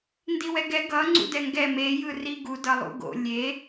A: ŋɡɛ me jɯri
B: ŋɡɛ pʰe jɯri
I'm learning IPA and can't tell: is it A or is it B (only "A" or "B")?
A